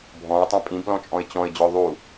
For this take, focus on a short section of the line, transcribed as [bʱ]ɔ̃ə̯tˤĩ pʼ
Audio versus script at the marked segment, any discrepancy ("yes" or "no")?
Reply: no